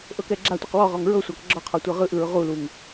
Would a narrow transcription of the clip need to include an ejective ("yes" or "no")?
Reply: no